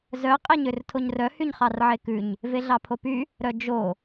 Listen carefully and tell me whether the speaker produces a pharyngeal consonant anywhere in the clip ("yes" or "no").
yes